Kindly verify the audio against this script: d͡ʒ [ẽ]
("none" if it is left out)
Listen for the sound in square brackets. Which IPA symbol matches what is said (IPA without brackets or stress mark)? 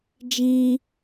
ĩ